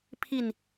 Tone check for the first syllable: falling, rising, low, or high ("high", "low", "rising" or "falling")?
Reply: falling